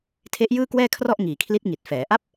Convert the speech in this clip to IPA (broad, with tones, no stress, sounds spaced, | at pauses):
tʰ e˦˥ ʔ j ɯː˥˩ k w ɛː˥˩ kʰ r ɔ˥˩ ʔ ŋ iː˨˩ kʰ l i˦˥ t̚ ŋ i˨˩ t̚ f ɛː˩˦ ʔ a˦˥ p̚